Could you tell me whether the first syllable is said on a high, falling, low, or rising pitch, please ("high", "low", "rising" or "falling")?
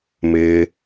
low